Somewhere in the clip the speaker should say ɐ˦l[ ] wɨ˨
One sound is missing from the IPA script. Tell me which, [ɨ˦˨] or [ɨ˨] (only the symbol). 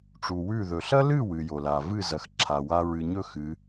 ɨ˦˨